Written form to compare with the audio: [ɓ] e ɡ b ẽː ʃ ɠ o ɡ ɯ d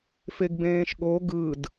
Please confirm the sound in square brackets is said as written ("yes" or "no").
no